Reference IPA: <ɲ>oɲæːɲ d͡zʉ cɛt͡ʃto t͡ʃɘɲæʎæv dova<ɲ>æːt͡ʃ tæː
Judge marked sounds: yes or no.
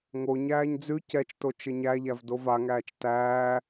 no, no

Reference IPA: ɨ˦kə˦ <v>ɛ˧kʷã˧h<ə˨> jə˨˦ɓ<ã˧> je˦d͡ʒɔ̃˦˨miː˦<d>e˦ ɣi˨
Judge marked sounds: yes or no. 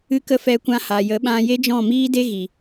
no, no, yes, yes

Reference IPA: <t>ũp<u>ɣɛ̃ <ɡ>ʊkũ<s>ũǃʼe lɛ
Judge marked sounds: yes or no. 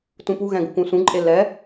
yes, yes, yes, yes

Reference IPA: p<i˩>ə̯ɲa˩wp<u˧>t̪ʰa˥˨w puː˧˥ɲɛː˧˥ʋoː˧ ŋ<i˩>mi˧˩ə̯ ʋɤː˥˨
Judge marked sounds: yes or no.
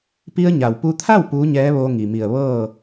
no, yes, yes

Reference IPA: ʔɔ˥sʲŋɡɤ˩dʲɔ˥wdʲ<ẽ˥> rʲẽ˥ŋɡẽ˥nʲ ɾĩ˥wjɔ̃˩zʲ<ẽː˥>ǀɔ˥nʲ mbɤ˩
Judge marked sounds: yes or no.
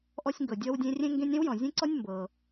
yes, no

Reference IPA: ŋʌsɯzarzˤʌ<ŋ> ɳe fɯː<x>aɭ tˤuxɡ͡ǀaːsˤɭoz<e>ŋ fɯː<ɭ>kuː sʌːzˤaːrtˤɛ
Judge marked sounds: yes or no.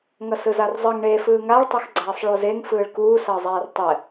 yes, no, yes, yes

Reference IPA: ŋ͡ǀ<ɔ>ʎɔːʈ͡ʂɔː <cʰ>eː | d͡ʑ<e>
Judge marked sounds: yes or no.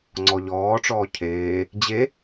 yes, yes, yes

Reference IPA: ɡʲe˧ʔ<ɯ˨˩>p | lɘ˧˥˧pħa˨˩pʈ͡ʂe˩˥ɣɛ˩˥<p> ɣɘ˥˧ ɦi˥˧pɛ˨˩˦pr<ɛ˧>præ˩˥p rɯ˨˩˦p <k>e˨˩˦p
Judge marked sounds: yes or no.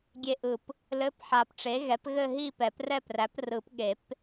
yes, yes, no, no

